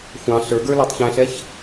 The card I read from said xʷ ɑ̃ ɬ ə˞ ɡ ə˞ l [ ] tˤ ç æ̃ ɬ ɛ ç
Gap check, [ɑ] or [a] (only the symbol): ɑ